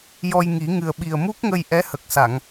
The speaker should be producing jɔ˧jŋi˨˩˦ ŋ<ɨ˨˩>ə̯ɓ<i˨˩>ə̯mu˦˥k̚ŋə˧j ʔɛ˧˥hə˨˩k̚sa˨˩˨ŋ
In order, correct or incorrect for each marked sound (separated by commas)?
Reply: correct, correct